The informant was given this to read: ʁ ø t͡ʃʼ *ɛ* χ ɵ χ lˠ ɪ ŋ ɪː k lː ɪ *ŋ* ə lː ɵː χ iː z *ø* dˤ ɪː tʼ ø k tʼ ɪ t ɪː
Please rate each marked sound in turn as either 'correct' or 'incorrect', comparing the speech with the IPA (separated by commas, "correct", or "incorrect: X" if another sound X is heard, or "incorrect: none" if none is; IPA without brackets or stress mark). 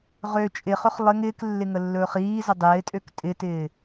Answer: incorrect: ɪ, correct, incorrect: ə